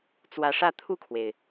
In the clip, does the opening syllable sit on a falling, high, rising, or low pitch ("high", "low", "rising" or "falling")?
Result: rising